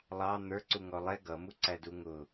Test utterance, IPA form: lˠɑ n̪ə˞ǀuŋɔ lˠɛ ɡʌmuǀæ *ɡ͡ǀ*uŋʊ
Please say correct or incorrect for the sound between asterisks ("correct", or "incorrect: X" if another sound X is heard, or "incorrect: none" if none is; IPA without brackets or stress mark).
incorrect: d